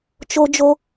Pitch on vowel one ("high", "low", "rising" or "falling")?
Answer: high